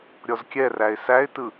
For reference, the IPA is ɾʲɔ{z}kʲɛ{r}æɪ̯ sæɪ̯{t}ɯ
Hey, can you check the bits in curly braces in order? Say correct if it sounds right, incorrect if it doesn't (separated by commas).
correct, correct, correct